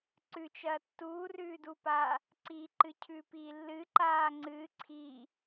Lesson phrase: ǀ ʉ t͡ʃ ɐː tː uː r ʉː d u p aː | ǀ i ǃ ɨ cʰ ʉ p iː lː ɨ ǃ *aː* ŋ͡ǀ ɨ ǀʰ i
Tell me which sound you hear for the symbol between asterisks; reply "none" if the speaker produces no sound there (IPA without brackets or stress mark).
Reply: aː